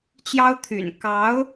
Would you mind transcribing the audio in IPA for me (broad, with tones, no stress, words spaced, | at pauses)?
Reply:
t͡ɕjɑ˥ʊ̯t̪ʰy̰˨˩n kɑ˧˥ʊ̯